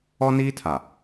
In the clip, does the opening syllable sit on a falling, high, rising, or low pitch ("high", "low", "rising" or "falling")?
high